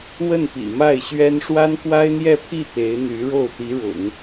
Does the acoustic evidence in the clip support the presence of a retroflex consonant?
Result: yes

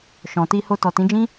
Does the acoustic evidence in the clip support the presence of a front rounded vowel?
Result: no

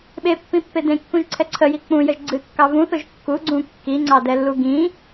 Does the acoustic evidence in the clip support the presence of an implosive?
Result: yes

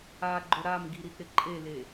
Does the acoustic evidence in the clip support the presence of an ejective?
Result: yes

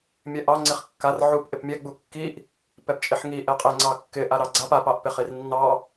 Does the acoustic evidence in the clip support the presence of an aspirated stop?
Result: no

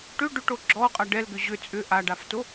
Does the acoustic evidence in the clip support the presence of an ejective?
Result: yes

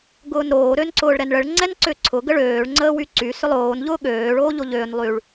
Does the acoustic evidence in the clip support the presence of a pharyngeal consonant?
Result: no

